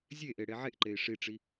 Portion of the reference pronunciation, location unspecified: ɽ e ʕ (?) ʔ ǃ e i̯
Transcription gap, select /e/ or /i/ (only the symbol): e